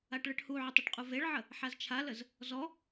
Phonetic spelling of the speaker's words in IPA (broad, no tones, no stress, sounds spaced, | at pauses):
a ʈ ɭ ɨ ʈ h u ʕ ə tˤ ə ʈ qʼ u v e ɭ ʕ ə | ħ a z t͡ʃʰ a l ə z | z ɔ